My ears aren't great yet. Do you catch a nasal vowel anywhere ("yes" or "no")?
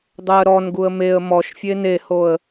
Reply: no